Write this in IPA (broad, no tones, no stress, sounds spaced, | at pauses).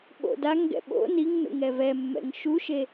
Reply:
ɓ o̰ d a ŋ ɡ ɛ̰ ɓ o̰ n i ŋ n ṵ ŋ ɛ v ɛ mː ɛ̰ ŋ ʃ u ʃ e